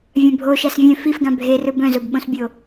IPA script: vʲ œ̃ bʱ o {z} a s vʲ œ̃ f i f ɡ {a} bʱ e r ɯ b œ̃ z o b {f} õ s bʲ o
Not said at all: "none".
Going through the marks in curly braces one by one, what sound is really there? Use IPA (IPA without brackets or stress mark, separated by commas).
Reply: ʃ, ã, ɓ